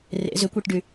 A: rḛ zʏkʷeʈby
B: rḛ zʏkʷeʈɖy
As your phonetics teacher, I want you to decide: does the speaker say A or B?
B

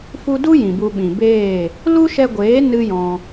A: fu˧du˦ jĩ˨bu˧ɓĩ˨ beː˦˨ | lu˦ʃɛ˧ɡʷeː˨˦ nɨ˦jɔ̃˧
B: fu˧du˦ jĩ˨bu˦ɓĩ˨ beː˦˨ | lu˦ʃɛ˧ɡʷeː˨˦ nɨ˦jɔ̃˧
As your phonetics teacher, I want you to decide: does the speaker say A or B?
A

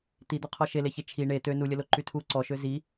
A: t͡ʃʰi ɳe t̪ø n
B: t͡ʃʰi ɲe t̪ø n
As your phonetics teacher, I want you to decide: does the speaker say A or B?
A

